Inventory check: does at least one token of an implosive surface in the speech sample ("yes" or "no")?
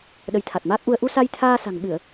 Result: yes